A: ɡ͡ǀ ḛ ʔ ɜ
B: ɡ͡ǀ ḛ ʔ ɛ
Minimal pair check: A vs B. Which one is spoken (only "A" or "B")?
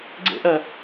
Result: A